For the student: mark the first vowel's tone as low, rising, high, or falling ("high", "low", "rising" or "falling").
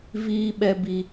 high